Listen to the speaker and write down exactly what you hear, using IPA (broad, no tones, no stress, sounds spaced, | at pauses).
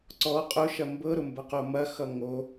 ǀ ɔ qʼ ʊ ʃ ɐ m b ɤ ɾ ʊ m b ɐ q o m ɐ x ʌ ŋ o